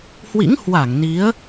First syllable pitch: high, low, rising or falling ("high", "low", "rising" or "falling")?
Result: rising